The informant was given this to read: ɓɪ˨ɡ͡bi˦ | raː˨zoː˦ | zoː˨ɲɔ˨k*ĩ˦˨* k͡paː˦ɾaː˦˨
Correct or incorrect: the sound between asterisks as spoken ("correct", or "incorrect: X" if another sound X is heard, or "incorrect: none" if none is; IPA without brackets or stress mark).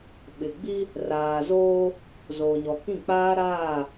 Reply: correct